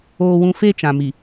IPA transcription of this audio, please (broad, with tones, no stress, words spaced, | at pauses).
oː˦wũ˦ fe˦t͡ʃã˨mi˨